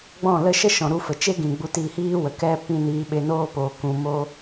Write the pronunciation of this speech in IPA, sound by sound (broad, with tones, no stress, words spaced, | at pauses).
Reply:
ɡ͡bɔ̃˦˨lə˦ ʃə˦˨ʃɔ̃˨ ɾu˧fə˨ t͡ʃe˦ɡĩ˨ ɡ͡bu˧tiː˧hiː˦wə˨ kɛ˧ pĩ˧niː˧ɓe˧ noː˧poː˨ kũ˧mo˦